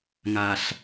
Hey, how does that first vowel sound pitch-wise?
low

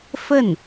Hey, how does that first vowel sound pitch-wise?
falling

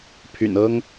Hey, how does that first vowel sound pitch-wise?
low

